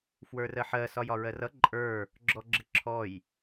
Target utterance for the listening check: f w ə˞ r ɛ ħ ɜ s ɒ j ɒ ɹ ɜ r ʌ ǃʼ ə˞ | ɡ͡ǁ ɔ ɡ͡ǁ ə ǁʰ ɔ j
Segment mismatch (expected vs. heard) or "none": ɛ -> ɜ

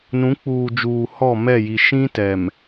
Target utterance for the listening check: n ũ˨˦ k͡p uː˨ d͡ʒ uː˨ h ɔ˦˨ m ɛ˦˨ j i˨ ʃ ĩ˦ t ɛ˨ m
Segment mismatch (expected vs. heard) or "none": none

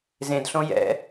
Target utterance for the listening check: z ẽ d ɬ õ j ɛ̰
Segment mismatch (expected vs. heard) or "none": none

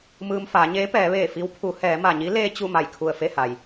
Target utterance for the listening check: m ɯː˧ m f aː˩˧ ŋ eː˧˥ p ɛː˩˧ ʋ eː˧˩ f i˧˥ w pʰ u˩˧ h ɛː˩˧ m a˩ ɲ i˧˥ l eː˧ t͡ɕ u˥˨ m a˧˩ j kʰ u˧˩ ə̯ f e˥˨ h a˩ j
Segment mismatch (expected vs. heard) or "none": ŋ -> ɲ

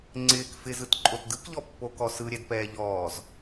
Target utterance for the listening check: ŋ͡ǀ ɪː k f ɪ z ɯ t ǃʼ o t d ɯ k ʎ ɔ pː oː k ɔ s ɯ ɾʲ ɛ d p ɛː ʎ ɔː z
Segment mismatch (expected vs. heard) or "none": none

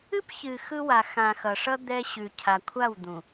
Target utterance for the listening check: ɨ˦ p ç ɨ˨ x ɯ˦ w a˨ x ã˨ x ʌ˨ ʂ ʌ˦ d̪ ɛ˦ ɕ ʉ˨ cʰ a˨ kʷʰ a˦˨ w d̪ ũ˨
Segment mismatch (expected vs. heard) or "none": none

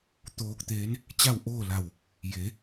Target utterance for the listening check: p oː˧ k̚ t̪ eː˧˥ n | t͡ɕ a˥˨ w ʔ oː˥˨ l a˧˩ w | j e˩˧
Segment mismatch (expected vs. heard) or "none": p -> t̪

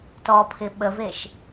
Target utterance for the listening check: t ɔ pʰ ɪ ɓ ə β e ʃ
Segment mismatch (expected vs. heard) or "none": β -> v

